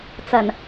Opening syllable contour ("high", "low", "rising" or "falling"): low